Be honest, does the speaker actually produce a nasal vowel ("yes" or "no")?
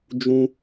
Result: yes